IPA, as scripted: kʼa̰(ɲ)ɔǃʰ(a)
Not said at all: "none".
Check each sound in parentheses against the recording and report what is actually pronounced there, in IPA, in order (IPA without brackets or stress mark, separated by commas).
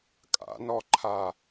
n, a